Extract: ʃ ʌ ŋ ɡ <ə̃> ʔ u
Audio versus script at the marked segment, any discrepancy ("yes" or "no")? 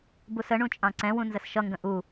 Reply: no